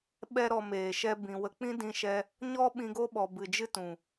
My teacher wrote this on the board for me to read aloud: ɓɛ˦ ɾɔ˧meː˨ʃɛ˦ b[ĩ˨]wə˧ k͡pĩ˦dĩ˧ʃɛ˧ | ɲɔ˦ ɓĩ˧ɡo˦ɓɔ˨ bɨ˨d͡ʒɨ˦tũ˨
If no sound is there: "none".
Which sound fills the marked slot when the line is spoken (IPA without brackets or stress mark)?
ĩ˨